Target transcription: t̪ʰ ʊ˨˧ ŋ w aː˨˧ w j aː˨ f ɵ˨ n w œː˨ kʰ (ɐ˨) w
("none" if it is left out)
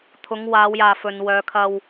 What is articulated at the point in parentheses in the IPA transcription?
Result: ɐ˧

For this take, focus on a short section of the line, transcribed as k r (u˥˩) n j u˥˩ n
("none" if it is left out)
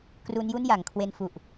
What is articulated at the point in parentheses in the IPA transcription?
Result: u˦˥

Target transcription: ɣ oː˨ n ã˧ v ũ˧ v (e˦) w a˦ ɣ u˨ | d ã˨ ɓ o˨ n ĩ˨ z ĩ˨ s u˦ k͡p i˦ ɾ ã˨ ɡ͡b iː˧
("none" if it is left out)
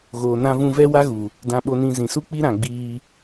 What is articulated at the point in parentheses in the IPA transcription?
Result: ɛ˦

